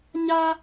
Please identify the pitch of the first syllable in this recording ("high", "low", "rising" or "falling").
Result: high